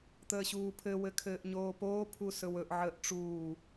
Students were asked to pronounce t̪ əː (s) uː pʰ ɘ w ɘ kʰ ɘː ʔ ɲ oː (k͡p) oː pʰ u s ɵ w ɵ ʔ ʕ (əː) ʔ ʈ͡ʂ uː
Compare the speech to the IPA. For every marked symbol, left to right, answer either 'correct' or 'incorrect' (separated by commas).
incorrect, incorrect, correct